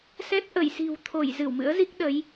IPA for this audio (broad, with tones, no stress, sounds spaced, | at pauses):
s ɛ˦˥ t̚ ʔ ə˧˩ j s i̤˨˩ w t̪ʰ o˧˩ j z ɨ˧˩ w m ɨ̰˧˥ ə̯ z i˦˥ k̚ ɗ ə˨˦ j